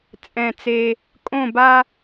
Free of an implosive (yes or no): yes